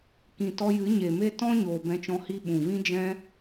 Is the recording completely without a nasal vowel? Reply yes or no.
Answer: no